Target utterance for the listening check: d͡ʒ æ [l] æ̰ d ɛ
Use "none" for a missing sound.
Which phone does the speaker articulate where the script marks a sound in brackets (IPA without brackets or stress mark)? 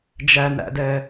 n